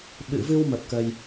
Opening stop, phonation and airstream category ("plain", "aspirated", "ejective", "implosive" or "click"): implosive